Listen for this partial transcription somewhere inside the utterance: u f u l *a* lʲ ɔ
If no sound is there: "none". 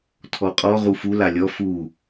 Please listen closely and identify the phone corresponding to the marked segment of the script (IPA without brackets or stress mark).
a